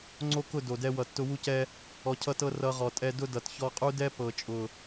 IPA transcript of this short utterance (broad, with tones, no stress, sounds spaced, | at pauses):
ŋ͡ǀ o˦ k ʊ˦˨ d o˨ d ɛ˧ w ʌ˨ tː ʊ˧ w u˧ c ɛ˧ | ɔ˧ cʰ ʌ˦ t ɤ˦ r ʌ˧ ʁ ɔ˨ tʼ ɛ˧ d ʊ˦ d ʌ˨ t ç ɔ˧ qʼ u˦ d ɛ˦ p ɤ˨ t͡ʃʼ ʊ˨